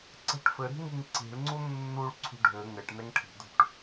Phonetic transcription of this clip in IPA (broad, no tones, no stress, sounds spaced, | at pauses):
ǀ ɛ̤ ʈ f ɘ ɾ i̤ ŋ i ŋ ǀ i̤ ɭ ŋ͡ǀ u nː u ɭ ǀʰ ṳ ɖʱ ɘ ŋ ɘ ʈ n ɛ ŋ ʈʰ i̤ d ṳ ʈ